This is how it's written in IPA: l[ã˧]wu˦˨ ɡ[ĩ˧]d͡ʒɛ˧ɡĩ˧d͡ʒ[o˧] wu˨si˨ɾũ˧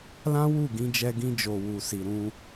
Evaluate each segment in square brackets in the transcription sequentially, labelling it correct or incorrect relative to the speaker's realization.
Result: incorrect, correct, incorrect

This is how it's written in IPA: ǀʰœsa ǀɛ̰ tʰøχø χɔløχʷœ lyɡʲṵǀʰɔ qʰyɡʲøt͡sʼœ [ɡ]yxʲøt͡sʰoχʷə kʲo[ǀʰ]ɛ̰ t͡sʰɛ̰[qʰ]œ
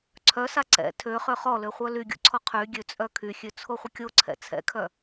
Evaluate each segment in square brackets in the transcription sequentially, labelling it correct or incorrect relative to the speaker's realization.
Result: incorrect, correct, incorrect

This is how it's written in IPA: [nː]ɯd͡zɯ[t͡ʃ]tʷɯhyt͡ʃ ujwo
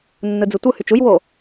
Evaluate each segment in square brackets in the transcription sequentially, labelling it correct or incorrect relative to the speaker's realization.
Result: correct, incorrect

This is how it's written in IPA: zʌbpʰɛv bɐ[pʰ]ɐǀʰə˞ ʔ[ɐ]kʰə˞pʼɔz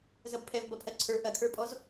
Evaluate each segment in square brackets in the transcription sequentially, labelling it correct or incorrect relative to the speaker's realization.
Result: correct, correct

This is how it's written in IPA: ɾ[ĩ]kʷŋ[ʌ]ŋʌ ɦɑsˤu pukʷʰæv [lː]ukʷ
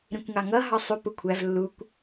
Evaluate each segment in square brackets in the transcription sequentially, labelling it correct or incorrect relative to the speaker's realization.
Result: correct, incorrect, correct

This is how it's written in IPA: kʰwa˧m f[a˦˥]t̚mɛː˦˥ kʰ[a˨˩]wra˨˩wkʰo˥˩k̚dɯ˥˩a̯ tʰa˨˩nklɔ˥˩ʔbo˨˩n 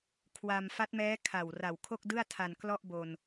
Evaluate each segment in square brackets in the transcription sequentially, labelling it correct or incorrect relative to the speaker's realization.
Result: correct, correct

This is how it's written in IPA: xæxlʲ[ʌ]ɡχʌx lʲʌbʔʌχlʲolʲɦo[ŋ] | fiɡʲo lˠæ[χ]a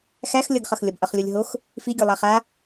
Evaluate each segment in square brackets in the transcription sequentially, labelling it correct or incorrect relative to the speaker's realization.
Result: correct, incorrect, correct

